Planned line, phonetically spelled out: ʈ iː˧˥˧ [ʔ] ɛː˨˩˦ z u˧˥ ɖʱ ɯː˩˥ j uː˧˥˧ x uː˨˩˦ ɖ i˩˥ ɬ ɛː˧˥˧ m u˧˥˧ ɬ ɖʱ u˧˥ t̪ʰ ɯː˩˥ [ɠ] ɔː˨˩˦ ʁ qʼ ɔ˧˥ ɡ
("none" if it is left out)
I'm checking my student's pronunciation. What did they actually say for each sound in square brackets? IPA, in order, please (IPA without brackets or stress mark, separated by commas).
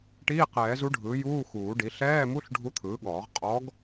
q, ɠ